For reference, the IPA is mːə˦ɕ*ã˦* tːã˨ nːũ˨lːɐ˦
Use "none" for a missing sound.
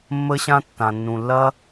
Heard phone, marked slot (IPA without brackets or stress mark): ã˦